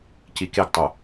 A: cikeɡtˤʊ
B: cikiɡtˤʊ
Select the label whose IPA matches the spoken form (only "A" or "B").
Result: A